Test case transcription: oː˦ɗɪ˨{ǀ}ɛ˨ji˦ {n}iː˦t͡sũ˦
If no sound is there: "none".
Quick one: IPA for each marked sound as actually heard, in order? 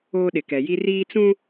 k, r

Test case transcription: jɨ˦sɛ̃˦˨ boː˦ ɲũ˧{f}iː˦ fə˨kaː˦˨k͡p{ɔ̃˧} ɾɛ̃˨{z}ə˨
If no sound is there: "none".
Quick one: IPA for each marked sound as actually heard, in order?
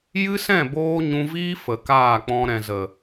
v, ɔ̃˧, z

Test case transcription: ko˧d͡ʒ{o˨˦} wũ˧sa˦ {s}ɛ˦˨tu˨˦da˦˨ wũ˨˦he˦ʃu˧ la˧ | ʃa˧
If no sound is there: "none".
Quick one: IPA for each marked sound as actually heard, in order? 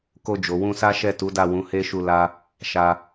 o˨, ʃ

